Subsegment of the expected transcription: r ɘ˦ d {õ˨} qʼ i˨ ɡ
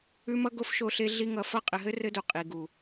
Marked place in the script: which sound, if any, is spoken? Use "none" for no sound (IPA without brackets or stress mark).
o˨